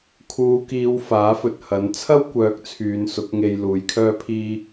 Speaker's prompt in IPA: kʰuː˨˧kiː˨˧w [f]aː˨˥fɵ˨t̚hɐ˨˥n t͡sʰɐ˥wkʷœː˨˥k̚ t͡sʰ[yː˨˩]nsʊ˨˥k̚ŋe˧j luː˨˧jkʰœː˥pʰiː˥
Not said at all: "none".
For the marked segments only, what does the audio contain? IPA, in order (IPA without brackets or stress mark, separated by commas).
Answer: f, yː˨˧